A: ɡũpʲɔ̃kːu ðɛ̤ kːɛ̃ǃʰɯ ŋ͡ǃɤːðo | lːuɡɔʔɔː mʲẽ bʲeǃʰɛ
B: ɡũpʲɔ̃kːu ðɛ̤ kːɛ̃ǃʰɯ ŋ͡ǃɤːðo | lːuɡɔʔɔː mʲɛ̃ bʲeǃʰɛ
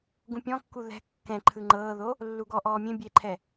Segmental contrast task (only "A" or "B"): A